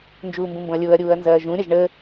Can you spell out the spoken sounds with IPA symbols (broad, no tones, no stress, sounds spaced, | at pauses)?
n d͡ʒ uː m b ũ m b õ ɐ̯ lʲ ʊː ɐ̯ ɾʲ uː ɐ̯ n z ɐː ʒ ũ ɾʲ ɐ ʒ ɳ ə